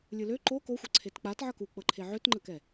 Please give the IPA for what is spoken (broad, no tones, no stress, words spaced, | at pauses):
lʲɯlø ǃo koxʷɤ ǀʰetk͡patʕʌ kuk͡pɤǃʰe ʕøtŋ͡ǃəkɛ